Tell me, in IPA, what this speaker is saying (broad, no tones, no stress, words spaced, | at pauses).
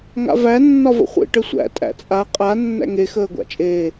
ŋa̰væ nːɒvə̰χʷḛ ʈəsʷæ̰ tʼæ̰t͡sʼa qʼa nːæ̰ŋe xəːɡʷa̰t͡ʃʼeː